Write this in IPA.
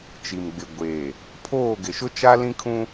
t͡ʃ i˨ m ɡ͡b ɪ˨ ɡʷ eː˨ | pʰ oː˦˨ ɡ ɪ˨ ʃ ʊ˦ t͡ʃ a˦ l ĩ˦ kʰ ũ˦

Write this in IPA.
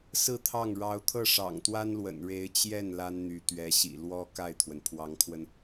s ɹ̩˥˧ t̪ʰ ɑ˥˩ ŋ ɻ ɑ˧˥ ʊ̯ t̪ʰ ɤ˥˩ ʂ ɑ̰˨˩ ŋ t̪ w a˥ n l w ə̰˨˩ n ɻ e˧˥ ɪ̯ t͡ɕ j ɛ˥˩ n l a˥ n n̪ y˧˥ t̪ ɥ ɛ˧˥ ɕ ḭ˨˩ l w ɔ˥ k a˥˩ ɪ̯ t̪ʰ w ə˩ n pʰ w ɑ˧˥ ŋ kʰ w ə˧ n

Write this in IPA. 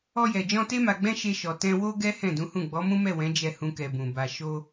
ɔ˧ j ɛ˨ d͡ʒ ɔ̃˧ t e˦ m a˧ ɡ͡b ɛ̃˦ ʃ e˧ ʃ ɔ˨ t ɛ̃˧ w o˦ ɡ ɛ˦ h ɛ̃˦˨ d ũ˨˦ h ũ˦˨ ɡ͡b ɔ˨˦ m ũ˦ m ɛ˦˨ w ɛ̃˨˦ d͡ʒ ɛ˦ h ũ˦ k ɛ˧ b ũ˨ b a˨ ʃ o˧

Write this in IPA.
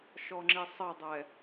ʃ ɔ ŋ͡ǁ i sˤ ɘ dˤ ɛ

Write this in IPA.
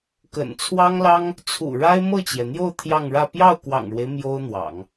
k ə̰˨˩ n t͡sʰ w ɑ˥ ŋ l ɑ˥ ŋ | t͡sʰ ṵ˨˩ ɻ a˥ ɪ̯ m ɤ˥˩ t͡ɕ j ɛ˩ n̪ j o˥˧ ʊ̯ t̪ʰ j ɑ˥˧ ŋ ɻ ä˥˧ p j ɑ˥˩ ʊ̯ k w ɑ̰˨˩ ŋ ɻ w e˦ ɪ̯ m j o˥ ʊ̯ n̪ w ɑ̰˨˩˦ ŋ

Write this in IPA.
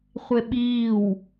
χʷ e ɓ iː w

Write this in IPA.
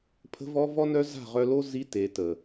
pʰ ə̤˧ v ɔ˧ v ɔ˧ n œ˧ z a̤˦˨ ʁ œ˧ l o˦ z i˧ t e˨ t ə˨

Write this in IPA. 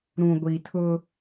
ɾ ũ˨ ɡʷ i˨ tʰ ʊ˦

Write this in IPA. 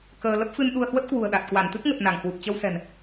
k əː˧ l ə˦˥ p̚ f ɨ˧ n ɗ u˧ ə̯ h w ə˦˥ t̚ k w ṳ˨˩ ə̯ ɗ a˨˩ t̚ k w a˧˩ n t̪ ɨ˦˥ k̚ ŋ ə˨˩ t̚ n a˧˩ ŋ h w u˨˩ p̚ t͡ɕ ə˧ w s ɛ̤˨˩ n

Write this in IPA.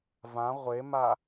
v ã ʁʷ e m a

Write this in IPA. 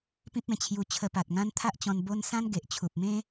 p ĩ˦ p̚ ẽ˨˩ t͡ɕʰ j u˧ t͡ɕʰ ə˧ p a˨ t̚ ŋ ã˦ n t̪ʰ a˦ ʔ t͡ɕ ɔ̃˧ n b o˦ n s ã˦ n ɡ e˨ ʔ t͡ɕʰ u˨ p̚ m ẽ˦

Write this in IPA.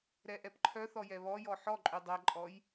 ɾ ɛ ʔ ɛ p ǃʰ œ θ ɔ j ɛ β ɔ j ɔ ħ ɔ ǃʼ ʉ dˤ ɛ ǃʼ ɔ j

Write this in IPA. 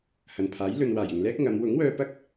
h ɐ˨ n pʰ aː˨˥ j l ɵ˨ n w aː˨˩ j ɪ˨ ŋ l ɛː˥ k̚ ŋ ɐ˨˧ m w ʊ˨˥ ŋ w œː˧ p ɐ˥ k̚

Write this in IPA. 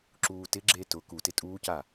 ǁ uː t ɪ ɡ͡ǁ e t ʊ k u t ɪ tʼ uː c a

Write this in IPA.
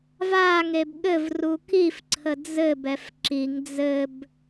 v a ŋ e b ɠ ɘ v r u k i f ǀʰ ə d͡z ɘ b ɛ f ǁ i ŋ d͡z ɘ b

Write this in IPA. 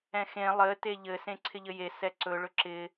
ɛ̃ x ẽ lˠ ɘ t e ʎ ɘ s ẽ ǀʰ ɪ ʎ ɘ j e s ɛ ǀ ɵ ɭ ɵ ǁ ɪ

